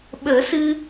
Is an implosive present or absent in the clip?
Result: present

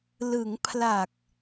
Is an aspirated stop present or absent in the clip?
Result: present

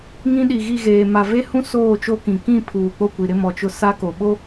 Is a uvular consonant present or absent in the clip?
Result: absent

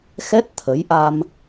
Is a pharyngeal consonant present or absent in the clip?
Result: absent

